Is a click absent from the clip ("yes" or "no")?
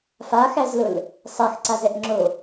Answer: no